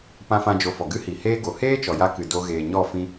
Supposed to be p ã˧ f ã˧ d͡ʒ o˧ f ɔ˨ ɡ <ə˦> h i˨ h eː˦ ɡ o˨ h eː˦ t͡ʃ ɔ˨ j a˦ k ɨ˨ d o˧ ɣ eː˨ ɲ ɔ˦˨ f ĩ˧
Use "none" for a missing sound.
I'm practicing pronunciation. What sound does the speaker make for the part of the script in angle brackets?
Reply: ɨ˦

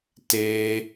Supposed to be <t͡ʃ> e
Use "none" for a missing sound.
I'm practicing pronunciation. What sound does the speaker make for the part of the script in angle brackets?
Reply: t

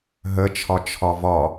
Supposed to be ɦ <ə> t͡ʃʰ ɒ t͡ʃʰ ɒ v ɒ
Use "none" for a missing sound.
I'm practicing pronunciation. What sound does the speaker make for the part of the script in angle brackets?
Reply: ə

